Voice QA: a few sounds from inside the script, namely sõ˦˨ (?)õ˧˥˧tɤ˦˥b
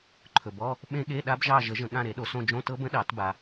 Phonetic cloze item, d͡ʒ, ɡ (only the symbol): d͡ʒ